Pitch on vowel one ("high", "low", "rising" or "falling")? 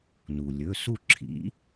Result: low